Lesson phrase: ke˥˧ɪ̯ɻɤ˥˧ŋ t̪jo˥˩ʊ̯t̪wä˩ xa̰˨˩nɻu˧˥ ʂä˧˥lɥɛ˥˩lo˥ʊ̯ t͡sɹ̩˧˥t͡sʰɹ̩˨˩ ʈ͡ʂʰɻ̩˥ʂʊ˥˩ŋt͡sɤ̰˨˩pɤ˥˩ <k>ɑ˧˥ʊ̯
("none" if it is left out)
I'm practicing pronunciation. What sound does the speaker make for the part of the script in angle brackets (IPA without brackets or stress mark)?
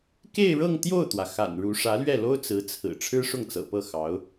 x